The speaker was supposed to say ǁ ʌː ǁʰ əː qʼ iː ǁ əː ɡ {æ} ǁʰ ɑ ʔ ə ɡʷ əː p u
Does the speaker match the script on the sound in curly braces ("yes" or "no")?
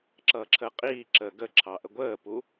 no